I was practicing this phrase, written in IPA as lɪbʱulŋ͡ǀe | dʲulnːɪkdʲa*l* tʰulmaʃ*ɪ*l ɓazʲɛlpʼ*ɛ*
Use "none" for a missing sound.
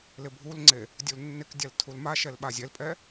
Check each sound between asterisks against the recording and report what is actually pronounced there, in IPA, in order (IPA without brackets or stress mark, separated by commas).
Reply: l, ɛ, ɛ